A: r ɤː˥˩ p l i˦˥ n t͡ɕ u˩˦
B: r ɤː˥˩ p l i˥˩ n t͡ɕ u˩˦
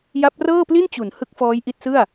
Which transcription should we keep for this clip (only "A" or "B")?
B